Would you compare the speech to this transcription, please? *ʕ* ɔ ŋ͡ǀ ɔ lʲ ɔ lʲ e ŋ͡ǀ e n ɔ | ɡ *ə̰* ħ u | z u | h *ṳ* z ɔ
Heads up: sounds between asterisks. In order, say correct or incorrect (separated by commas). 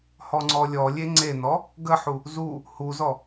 incorrect, incorrect, incorrect